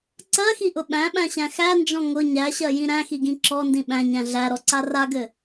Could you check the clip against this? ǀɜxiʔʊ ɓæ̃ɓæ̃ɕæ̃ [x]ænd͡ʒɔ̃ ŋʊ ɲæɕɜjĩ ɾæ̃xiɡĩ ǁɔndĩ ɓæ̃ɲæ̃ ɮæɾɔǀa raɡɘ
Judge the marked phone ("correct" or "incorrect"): correct